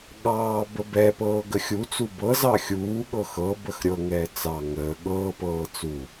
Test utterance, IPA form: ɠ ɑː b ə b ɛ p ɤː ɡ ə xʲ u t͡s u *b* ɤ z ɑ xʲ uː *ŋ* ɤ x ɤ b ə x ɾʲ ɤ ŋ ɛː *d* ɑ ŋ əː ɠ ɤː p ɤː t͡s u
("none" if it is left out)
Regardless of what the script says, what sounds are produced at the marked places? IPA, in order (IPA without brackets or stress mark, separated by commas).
b, ɠ, t͡s